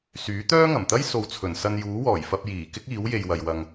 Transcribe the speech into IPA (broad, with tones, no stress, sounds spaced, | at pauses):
s yː˨˥ t̪ œː˥ ŋ ɐ˨˩ m t̪ ɐ˥ j s o˨ w t͡sʰ ɵ˨˩ n s ɐ˧ n j uː˨˥ w ɔː˨˩ j f ɐ˧ p̚ j iː˨˩ k ɪ˥ k̚ iː˨˥ w j e˨ j w ɐ˨ j w ɐ˧ ŋ